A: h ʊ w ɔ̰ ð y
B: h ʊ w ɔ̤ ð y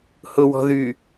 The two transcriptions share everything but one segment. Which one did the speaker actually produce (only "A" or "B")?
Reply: B